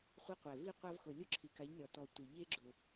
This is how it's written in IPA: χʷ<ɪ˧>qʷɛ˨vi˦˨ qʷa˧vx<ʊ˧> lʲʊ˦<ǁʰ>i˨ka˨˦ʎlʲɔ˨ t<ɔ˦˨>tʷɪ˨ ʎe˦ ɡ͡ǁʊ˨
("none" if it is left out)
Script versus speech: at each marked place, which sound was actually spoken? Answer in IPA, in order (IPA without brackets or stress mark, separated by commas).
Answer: ɪ˧, ʊ˨, ǁʰ, ɔ˨